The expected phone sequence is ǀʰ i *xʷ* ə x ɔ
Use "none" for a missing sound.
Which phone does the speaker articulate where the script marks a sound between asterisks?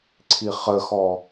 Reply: χ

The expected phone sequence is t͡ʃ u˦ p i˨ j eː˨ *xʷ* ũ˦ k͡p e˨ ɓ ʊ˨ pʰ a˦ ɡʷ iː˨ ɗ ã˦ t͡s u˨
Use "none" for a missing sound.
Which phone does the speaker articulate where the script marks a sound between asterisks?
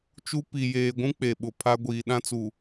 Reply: ɡʷ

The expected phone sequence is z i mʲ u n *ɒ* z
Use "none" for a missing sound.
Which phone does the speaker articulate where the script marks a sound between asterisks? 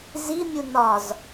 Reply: ɒ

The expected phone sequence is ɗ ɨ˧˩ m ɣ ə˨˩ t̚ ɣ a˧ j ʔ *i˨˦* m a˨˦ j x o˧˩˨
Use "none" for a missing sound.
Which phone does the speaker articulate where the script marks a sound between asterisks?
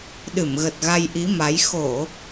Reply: i˨˦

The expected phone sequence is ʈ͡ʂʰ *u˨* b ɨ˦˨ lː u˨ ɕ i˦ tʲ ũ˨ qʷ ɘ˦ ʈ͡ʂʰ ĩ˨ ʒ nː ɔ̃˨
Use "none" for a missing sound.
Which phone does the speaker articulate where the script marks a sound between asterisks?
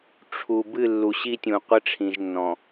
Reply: u˨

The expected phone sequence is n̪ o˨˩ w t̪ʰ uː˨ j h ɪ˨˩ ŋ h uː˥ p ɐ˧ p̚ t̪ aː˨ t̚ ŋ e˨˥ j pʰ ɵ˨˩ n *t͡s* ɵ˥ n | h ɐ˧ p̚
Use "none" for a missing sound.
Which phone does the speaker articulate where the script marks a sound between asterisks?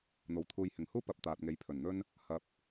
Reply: n̪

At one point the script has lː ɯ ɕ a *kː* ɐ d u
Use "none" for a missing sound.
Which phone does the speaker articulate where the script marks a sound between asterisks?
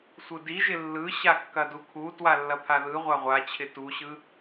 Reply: kː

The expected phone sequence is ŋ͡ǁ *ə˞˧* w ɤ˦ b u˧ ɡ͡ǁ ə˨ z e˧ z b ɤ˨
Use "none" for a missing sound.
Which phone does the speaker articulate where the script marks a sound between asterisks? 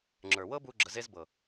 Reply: ə˞˨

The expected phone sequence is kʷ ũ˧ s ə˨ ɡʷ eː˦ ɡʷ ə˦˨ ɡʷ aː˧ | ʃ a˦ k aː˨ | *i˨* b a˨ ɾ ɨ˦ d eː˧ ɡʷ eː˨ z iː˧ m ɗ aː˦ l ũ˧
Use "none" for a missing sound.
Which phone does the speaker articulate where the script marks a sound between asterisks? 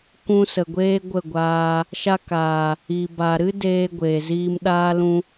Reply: i˨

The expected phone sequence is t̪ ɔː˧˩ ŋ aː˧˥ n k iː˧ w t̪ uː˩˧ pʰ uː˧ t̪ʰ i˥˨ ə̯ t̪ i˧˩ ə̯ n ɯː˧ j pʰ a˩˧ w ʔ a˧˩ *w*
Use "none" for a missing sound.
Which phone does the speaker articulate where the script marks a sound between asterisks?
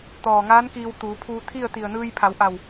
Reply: w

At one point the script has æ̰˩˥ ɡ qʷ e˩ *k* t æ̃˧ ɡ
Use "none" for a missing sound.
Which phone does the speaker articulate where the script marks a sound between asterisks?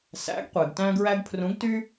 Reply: ɡ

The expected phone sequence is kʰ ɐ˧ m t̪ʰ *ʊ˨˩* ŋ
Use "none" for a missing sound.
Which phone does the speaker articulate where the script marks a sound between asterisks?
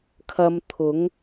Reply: ʊ˨˥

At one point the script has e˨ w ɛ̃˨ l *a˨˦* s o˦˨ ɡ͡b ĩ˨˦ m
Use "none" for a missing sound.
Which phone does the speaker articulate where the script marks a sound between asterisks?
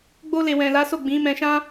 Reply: a˨˦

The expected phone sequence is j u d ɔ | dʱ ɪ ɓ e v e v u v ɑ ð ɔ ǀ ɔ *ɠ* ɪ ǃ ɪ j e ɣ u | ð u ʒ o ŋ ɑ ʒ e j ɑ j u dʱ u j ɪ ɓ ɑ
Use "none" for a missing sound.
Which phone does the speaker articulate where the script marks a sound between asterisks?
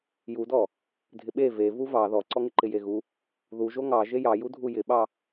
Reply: ŋ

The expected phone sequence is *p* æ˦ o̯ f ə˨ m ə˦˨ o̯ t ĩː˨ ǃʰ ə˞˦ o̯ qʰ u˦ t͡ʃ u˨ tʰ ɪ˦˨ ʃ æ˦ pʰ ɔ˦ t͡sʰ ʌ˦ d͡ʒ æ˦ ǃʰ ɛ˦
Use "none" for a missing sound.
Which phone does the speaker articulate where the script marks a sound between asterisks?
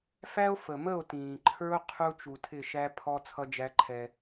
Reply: f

